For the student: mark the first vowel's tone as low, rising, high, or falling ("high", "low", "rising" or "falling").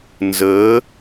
rising